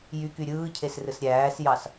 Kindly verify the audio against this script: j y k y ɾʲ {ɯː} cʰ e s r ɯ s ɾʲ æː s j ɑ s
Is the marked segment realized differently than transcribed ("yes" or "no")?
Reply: no